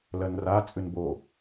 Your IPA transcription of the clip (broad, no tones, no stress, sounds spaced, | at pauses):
l ɜ n r a t͡sʼ ʉ n b o